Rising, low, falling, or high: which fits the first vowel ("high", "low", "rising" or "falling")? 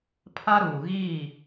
high